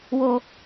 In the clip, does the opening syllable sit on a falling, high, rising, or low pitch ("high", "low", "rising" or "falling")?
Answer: low